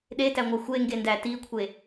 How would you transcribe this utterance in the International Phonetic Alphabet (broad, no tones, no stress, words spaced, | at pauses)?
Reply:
ɗetæŋʷæ xʷeŋɡendæ tikʷʰe